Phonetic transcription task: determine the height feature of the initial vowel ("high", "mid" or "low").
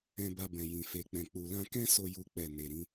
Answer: mid